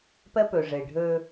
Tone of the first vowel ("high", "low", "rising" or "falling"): high